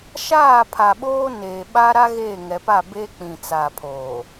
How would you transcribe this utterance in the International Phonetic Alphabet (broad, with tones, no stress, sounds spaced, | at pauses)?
ʃ aː˦˨ pʰ a˨ ɓ oː˦ n eː˨ ɓ a˦ ɾ a˦ ɣ eː˦˨ ŋ ɛ˨ p a˦˨ b eː˦ k͡p ĩ˨ t͡s a˨ pʰ oː˨